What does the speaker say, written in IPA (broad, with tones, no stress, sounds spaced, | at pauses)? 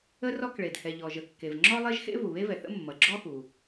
ə˥ r ɔ˥ k ɭ e˩ d h ɛ˩ ʎ ɔ˩ ʒ ə˩ kː e˩ v ŋ͡ǁ ɔ˥ lˠ e˥ ʒ x ḛ˥ v u˩ β e˥ v ɛ˩ θ ə̰˥ mː ʌ˩ ɡ͡ǁ ɔ˥ x u˩